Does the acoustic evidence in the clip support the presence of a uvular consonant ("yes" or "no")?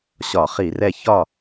yes